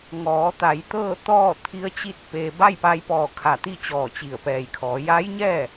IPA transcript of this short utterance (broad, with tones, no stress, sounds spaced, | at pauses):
ŋ ɔː˩˧ t̪ a˩˧ j t̪ ɤː˥˨ t̪ ɔː˥˨ t̪ʰ i˧˥ ə̯ t͡ɕ i˥˨ t̚ p eː˧ b a˥˨ j p a˧ j p ɔː˧˩ kʰ a˧˩ t̪ i˥˨ t͡ɕ ɔː˧˩ t͡ɕ i˧˩ ə̯ p ɛː˧˩ j kʰ ɔː˩˧ j a˧˥ j ɲ ɛː˥˨